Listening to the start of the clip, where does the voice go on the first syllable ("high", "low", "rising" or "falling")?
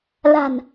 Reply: low